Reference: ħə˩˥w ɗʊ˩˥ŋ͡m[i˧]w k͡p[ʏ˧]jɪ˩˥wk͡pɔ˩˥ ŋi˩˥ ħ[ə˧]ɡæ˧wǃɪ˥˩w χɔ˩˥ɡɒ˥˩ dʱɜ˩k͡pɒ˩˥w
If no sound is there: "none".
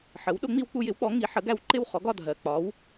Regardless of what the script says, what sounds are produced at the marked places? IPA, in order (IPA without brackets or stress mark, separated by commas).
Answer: i˧, u˧, ə˩˥